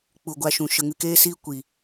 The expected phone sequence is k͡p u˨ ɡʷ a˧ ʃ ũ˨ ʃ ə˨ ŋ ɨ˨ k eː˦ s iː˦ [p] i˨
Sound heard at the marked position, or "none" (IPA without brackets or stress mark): kʷ